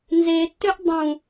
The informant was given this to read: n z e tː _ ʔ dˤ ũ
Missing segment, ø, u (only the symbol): ø